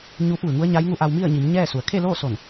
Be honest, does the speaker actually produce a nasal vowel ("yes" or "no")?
no